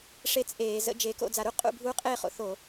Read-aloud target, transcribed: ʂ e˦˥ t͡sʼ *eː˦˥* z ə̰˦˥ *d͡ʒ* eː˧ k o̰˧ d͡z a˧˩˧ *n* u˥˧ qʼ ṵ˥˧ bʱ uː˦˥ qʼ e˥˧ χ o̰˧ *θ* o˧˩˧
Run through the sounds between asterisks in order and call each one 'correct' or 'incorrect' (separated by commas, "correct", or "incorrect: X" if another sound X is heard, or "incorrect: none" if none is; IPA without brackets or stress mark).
incorrect: eː˧˩˧, correct, incorrect: ɾ, correct